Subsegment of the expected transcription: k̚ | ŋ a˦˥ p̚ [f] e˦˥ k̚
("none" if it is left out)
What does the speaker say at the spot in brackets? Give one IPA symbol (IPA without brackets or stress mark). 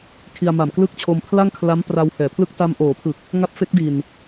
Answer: f